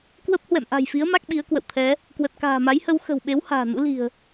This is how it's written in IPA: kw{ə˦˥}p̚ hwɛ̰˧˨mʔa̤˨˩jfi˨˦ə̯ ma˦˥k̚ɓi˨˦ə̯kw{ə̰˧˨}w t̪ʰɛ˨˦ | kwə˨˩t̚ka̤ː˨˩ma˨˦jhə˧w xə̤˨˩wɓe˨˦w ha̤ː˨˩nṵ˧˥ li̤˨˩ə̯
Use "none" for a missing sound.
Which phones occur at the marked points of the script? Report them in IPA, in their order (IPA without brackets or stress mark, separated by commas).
ə˦˥, ə̰˧˨